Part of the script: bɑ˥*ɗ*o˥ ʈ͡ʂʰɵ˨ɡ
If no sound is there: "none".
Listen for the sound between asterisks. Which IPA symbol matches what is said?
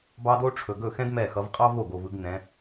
d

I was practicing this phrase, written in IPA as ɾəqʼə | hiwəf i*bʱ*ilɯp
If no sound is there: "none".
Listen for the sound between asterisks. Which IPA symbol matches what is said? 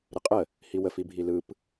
bʱ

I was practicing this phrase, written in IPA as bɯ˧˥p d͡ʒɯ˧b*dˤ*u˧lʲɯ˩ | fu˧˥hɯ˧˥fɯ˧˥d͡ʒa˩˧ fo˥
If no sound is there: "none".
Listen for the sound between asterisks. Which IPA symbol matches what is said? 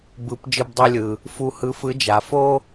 dˤ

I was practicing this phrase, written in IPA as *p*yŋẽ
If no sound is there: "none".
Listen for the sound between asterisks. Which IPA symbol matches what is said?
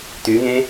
t̪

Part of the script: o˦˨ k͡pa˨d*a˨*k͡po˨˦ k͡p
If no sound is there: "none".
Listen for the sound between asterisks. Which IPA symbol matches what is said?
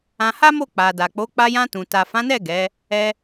a˨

